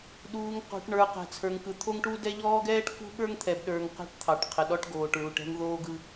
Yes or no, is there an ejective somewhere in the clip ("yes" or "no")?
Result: no